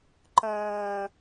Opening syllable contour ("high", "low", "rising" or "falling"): low